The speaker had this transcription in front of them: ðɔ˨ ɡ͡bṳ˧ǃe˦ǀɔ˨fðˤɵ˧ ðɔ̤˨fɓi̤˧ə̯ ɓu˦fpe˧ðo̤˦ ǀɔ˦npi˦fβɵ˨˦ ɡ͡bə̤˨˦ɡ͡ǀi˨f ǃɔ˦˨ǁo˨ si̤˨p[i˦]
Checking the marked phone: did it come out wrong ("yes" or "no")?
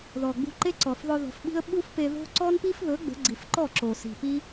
no